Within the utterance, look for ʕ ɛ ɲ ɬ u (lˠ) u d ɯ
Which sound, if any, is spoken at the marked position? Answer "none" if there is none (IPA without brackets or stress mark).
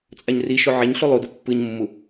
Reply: lˠ